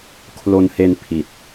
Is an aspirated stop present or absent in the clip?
present